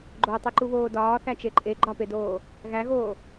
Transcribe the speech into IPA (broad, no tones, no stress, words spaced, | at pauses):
ɡ͡ǃotˤiǃuβoː dɒːθæt͡ʃe ǃʼe ɡ͡ǃɒpedoː | ɣæɣoː